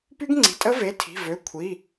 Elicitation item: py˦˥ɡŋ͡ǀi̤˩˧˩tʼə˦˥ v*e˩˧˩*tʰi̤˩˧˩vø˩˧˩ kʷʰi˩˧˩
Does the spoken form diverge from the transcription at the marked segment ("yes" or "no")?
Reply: no